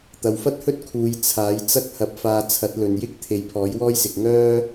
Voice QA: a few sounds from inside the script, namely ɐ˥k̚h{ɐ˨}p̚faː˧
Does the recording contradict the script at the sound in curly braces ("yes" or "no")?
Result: yes